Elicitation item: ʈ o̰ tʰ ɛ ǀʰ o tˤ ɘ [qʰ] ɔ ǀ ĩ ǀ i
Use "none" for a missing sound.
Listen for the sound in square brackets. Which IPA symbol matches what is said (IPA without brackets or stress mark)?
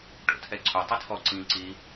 tʰ